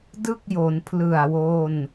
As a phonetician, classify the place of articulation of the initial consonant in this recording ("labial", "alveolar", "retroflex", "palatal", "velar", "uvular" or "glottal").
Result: alveolar